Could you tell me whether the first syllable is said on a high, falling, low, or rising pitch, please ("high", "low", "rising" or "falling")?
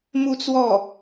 falling